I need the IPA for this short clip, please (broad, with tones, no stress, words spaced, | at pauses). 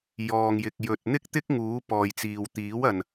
jɔː˨ŋjɪ˨k̚ jɵ˨t̚ n̪ɪ˥k̚t̪ɪ˥k̚ŋuː˨˥ pɔː˨jt͡siː˨w t̪iː˨˥wɐ˨n